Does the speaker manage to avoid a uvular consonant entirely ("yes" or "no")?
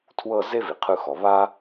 no